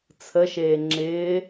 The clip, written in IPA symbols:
t͡sʰ ə ʃ eː ŋ͡ǁ ɪː

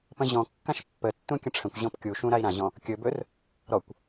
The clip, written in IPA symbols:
p ə̃ ʑ ɔ̃ kː ã ʃ pː ə tː ũ kʲ ə̃ ʈ͡ʂʰ ə̃ kʷ ʑ ɔ̃ p kʲ u ʃ ũ ɾ a i̯ ɾ ã ʑ ɔ̃ | kʲ ɵ b ɵ r | ɾ ɔ kʷ

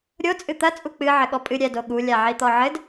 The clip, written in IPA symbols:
ɾʲ o t͡sʼ ɨ t̪ ɐ t͡sʼ u k͡p ɨ ʕ ɘ ɠ ɔ pʼ ɨ ɾʲ ɛ d o ɠ u lʲ a ʕ i t̪ ɔ ʕ ɘ d

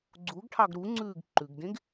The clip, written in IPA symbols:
ɡ͡ǀ u ɡ ʈʰ ɑ ɡ ɾ u ŋ͡ǀ ʉː ɡ ǃ ʉ ɡ d ẽ ɡ

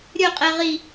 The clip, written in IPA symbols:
ɾʲ ɵ qʼ ɛ ʁ i

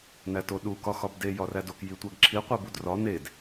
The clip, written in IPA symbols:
n æ t o ɗ u k ɒ x ɒ b d e j ɒ r æ d o k j i tʷ æ ɡ ǁʰ i qʷ e b u d r ɒ n e d

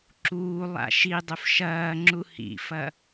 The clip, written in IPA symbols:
ǁ uː lˠ a̰ ʃ i dˤ ɵ f ʃ ɐː ŋ͡ǁ u h ḭ f ɐ

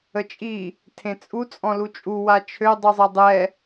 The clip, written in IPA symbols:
ə t͡ʃʼ i | tʰ ẽ t͡sʼ u t͡sʼ ɔ̃ l u t͡ʃʼ u w a t͡ʃʰ ø dˤ u zˤ ɛ dˤ ɛ

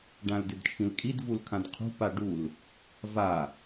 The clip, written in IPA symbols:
ɖ ã l d ɪ d t͡ʃʰ ĩ l kʼ i d v u l kʰ ã d qʰ ṳ p a ɖ u l | v a

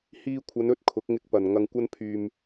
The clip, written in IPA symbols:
h iː˧ kʷʰ ɐ˨˧ n ɵ˥ t̚ kʰ ʊ˨˥ k̚ ŋ ɪ˧ k̚ p ɐ˨ n ŋ ɐ˧ ŋ kʷ ɐ˥ n pʰ yː˧ m

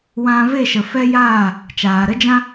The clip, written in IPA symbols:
w ã˧ v e˦˨ ʃ ə˨ f ɛ˦ j aː˦˨ | t͡ʃ aː˨ ɾ ə˦ d͡ʒ ã˦

